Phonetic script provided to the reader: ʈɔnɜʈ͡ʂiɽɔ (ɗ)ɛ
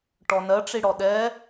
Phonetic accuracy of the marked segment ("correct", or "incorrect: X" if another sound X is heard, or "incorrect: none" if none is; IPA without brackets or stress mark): correct